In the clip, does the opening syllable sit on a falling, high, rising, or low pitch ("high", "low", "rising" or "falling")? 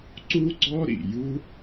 high